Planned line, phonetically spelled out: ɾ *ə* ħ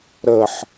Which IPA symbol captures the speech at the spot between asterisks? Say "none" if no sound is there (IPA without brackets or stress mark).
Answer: ə